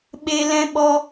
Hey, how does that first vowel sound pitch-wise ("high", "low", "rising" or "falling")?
low